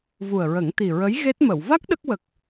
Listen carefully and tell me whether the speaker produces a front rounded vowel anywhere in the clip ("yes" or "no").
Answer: no